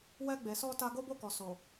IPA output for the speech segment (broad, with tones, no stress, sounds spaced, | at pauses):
w ɛ˧ ɡ͡b e˨ s ɔ˧ t a˧ ɡ o˦ b o˦˨ k ɔ˨ s o˨